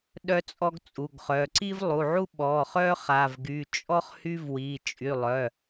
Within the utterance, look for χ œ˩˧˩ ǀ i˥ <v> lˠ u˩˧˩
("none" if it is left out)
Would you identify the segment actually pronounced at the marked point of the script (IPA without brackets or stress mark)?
v